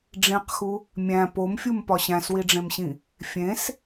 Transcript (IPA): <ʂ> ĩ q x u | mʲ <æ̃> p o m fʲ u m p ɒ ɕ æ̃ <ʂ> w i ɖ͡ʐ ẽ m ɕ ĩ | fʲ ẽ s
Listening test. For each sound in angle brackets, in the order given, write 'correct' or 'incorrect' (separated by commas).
incorrect, correct, incorrect